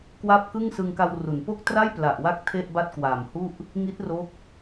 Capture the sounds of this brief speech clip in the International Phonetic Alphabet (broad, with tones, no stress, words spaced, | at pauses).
kwa˥˩p̚kɯ˥˩ŋ sɯ˧ŋka˧wru˩˦npo˥˩k̚ tra˥˩jpla˨˩ʔwa˦˥k̚ tʰe˥˩ʔba˥˩t̚kwa˨˩mhu˥˩ʔ | ŋi˦˥t̚ro˦˥k̚